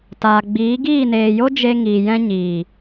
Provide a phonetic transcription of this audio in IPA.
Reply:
t aː˨ ɡ͡b iː˨˦ ɡ iː˦˨ n eː˨ j o˦ d͡ʒ e˧ ŋ iː˨ j ɛ̃˧ ɲ iː˨

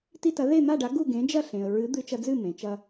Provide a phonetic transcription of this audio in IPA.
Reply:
t i˧ t ɐ˩˥ ð e˥˩ n̪ a˥˩ ɖ a˩˥ ɡ u˥˩ ɡ ẽ˩˥ d͡ʒ ɐ˥˩ ɬ ẽ˩ ə̯ ɹ ɨ˩˥ d̪ ɨ˧ t͡ʃ ɐ˧ d͡z ɨ˥˩ m ẽ˩ t͡ʃ ɐ˧

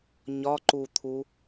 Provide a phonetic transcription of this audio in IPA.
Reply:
ɲ ɒ ǃ u t̪ʰ u

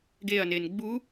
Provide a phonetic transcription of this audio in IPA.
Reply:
ɡ e ɐ̯ n e n ɡ͡b u

